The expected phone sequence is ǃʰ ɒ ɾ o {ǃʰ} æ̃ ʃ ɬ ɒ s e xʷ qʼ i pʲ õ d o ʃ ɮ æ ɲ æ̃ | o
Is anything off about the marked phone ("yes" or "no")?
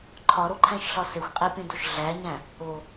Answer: no